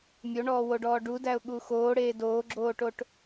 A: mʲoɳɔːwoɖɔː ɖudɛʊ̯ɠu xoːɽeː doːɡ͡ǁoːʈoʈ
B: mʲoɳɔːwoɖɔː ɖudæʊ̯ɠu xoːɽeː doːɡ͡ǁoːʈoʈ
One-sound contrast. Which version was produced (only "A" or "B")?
B